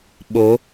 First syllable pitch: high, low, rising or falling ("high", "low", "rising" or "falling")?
rising